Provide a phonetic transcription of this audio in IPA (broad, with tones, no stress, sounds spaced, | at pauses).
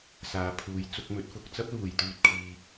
s aː˨ pʰ uː˨˧ j t͡s ʊ˧ k̚ m ɵ˨˥ t̚ f ʊ˨˥ k̚ t͡s ɐ˥ p̚ l uː˨ j t̪ yː˧ t̚ kʰ iː˧